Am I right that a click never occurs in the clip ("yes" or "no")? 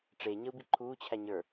no